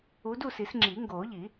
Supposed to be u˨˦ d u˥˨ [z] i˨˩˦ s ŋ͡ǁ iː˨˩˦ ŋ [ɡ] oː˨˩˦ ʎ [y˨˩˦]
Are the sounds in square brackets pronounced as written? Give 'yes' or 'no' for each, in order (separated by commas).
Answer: no, yes, no